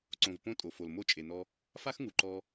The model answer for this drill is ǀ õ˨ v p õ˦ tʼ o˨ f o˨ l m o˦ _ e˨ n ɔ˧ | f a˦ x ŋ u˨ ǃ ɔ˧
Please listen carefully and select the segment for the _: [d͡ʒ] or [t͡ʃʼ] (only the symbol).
t͡ʃʼ